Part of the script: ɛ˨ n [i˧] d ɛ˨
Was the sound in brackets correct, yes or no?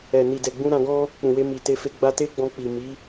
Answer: no